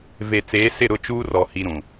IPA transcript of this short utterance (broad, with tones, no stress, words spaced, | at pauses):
ve˨ t͡seː˨˦sɪ˦˨ɾʊ˦˨ t͡ʃuː˦rɔ˨ hi˦ɾũ˨